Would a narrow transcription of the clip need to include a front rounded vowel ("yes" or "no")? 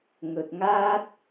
no